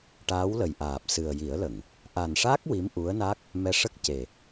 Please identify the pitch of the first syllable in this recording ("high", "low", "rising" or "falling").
rising